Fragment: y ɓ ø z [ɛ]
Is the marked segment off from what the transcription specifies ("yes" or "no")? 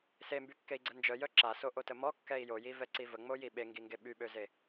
yes